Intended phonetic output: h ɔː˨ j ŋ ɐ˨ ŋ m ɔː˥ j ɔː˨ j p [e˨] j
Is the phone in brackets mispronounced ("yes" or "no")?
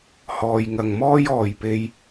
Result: yes